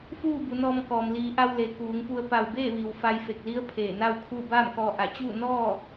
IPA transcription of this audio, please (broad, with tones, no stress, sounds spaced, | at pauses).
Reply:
f uː˥˨ b u˩˧ n ɔː˧ m k ɔː˩ m l iː˩˧ ʔ a˧ w l e˩ k uː˩˧ ŋ p u˧ ə̯ p a˧˩ w b e˥˨ ʋ i˩ w f a˧ j f e˧˩ k̚ l i˧˥ ə̯ pʰ eː˧˩ n a˥˨ w kʰ u˥˨ b aː˥˨ m k ɔː˧ ʔ a˧˩ t͡ɕ uː˥˨ n ɔː˥˨